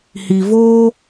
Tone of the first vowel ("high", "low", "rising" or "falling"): low